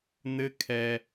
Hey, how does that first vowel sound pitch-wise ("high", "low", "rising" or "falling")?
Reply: high